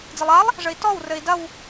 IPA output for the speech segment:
d͡z ɐ lˠ a lˠ | ʐ ɘ i̯ t ɔ w r ɘ i̯ d ɐ w

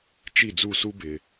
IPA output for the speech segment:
t͡ʃ i˥˩ d͡z u˥˩ s u˥ b ɪ˩

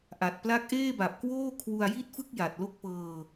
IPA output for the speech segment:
ʔ a˨˩ t̚ p l a˦˥ k̚ ʔ eː˥˩ b a˨˩ p̚ k w oː˥˩ kʰ w u˧ a̯ j i˥˩ t̚ f ɯ˥˩ k̚ j a˨˩ t̚ l o˦˥ k̚ p ɤː˧

